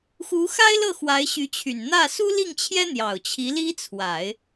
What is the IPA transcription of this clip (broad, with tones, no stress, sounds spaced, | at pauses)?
x u˧˥ x a˥ ɪ̯ l ɤ˥˩ x w a˧˥ ɪ̯ ɕ y˧˥ t͡ɕʰ y˨˩ n n̪ ä˥˩ s u˥ l i˥˩ ŋ t͡ɕʰ j ɛ˥ n̪ j ɑ˨˩ ʊ̯ t͡ɕʰ i˧˥ l i˥ t͡sʰ w a˨˩˦ ɪ̯